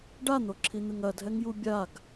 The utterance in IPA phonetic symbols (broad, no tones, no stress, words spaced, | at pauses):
ɖan̪oǁʰin̪ɨŋ ɐdʱɛŋju bʲaɡ